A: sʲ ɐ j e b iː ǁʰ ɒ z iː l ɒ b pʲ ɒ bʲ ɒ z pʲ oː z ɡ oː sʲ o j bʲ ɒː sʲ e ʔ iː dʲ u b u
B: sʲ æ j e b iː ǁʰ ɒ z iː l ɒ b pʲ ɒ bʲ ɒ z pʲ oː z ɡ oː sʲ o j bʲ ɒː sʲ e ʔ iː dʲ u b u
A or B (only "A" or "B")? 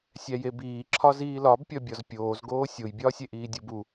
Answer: B